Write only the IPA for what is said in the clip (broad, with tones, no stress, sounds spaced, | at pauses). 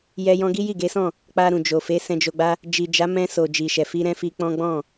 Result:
j ɛ˧ j ɔ̃˧ ɡ i˦ j i˦˨ ɡ e˨˦ s ɔ̃˦˨ | k͡p a˧ ɾ ũ˨ d͡ʒ o˨ f e˨˦ s ɛ̃˧ d͡ʒ o˧ ɡ͡b a˦ | d͡ʒ i˨ d͡ʒ a˨˦ m ɛ̃˧ s o˨ d͡ʒ i˨ ʃ ɛ˨ f i˧ ɾ ɛ̃˦ f i˧ k͡p ɔ̃˦ ɡ͡b ɔ̃˦˨